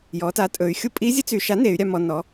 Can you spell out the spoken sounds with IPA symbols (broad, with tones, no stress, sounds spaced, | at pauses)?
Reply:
j ɔ˩˧ t a˩˥ tʼ ɵ˩˧ y̯ xʲ u˧˥ pʼ i˧˥ zʲ ə˧˥ t͡s y˩˧ ʃ a˩˥ n e˩˧ y̯ ɾʲ a˩˧ m ɔ˩˧ n ɔ˩˥